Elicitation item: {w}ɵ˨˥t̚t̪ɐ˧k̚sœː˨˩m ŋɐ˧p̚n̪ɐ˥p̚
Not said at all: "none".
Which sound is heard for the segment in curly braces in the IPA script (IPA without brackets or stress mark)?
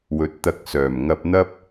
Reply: w